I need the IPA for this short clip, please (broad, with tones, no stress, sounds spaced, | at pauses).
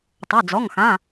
tˤ o˩˧˩ d͡z ɔ˩˧˩ ŋ x ã˩˧˩